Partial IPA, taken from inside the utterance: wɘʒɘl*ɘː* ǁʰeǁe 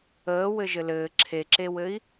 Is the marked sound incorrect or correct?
correct